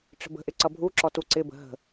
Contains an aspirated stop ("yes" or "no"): no